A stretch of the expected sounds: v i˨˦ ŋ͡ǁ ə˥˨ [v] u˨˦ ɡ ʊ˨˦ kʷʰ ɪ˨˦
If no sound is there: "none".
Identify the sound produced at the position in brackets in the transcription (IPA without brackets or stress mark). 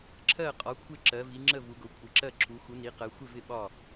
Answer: v